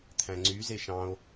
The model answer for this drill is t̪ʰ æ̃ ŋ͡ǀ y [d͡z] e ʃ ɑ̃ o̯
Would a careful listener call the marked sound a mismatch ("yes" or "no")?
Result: yes